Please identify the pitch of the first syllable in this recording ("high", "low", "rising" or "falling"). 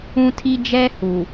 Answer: high